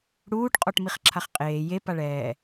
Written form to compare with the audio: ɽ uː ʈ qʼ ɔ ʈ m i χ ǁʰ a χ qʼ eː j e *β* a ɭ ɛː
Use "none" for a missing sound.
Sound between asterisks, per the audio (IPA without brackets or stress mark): p